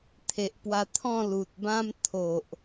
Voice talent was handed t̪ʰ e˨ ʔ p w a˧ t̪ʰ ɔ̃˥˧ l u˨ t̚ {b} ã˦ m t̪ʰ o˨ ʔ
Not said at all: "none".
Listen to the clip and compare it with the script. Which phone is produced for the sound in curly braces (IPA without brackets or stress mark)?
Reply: b